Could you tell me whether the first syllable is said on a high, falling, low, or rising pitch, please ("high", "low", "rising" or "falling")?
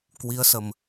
rising